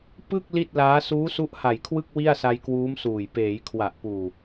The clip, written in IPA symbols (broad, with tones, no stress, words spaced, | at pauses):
pɯ˥˩k̚ li˥˩t̚laː˦˥ suː˦˥su˦˥ʔha˨˩jkʰwɯ˥˩k̚ wi˥˩a̯sa˧jkwuː˦˥m suː˨˩j peː˩˦j kʰwa˨˩ʔpuː˨˩